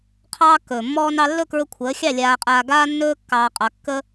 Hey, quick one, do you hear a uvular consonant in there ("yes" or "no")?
yes